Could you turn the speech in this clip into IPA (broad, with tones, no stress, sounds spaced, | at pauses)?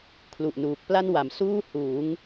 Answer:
kʰ l u˨˩ ʔ n uː˨˩ k̚ p l a˥˩ n w a˨˩ m s uː˥˩ h uː˩˦ ŋ